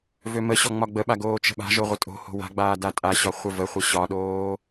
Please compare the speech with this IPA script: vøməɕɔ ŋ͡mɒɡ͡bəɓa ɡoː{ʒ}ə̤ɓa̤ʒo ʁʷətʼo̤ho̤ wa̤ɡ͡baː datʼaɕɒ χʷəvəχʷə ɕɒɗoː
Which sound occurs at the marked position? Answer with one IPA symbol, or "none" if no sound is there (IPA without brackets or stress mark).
t͡ʃ